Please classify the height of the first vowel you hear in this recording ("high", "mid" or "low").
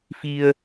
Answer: high